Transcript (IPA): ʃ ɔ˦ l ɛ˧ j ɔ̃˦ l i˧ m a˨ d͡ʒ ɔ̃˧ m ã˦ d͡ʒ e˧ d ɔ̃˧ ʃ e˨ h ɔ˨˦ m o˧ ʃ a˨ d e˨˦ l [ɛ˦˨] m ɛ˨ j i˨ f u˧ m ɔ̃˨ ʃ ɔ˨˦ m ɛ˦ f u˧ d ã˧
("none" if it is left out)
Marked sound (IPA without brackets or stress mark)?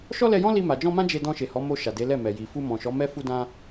ɛ˦˨